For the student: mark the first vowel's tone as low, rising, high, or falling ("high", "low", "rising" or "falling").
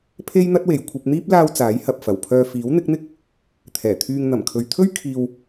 high